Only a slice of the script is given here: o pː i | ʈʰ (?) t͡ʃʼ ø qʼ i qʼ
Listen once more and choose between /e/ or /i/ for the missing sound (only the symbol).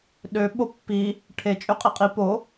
e